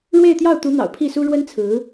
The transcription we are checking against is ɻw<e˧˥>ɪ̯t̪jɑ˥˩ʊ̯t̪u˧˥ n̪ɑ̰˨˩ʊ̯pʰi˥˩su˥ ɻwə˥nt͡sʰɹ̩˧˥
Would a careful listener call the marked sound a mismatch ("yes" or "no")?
yes